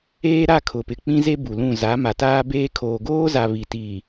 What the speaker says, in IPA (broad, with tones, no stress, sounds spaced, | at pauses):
eː˦ ɾ a˦˨ kʰ ʊ˨ p ɪ˨ k͡p ĩ˦ z e˦ b u˨ l ũ˦˨ z a˨˦ m a˨ t aː˦ b eː˦ kʰ oː˨ ɡ oː˦ z a˨ β i˨ t iː˨